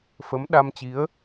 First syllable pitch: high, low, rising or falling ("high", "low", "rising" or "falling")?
rising